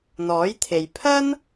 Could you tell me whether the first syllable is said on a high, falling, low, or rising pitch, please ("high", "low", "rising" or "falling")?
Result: rising